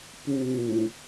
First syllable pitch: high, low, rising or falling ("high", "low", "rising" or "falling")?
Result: low